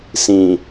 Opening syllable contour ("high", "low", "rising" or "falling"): low